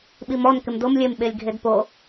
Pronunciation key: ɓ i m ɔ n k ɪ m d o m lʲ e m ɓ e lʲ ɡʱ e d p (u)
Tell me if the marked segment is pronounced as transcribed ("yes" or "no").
no